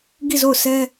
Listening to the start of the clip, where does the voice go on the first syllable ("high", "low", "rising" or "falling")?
falling